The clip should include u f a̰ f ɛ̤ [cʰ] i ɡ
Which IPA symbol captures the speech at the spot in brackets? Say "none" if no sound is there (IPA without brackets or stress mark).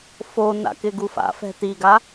t